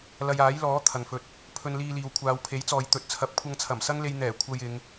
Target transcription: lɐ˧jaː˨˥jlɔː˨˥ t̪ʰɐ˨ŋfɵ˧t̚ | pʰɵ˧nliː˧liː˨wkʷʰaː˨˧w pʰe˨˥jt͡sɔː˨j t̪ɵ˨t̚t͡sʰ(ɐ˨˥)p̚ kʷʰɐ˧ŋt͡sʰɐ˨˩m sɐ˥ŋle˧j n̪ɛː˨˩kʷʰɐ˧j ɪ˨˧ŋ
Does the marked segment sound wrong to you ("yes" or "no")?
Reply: no